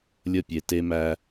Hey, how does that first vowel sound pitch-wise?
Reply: falling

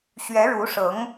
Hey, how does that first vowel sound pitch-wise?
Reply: rising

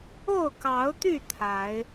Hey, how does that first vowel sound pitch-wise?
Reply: falling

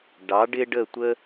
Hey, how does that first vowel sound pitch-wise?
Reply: rising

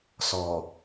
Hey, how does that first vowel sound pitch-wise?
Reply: low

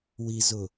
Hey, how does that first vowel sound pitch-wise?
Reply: low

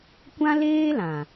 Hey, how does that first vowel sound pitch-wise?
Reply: high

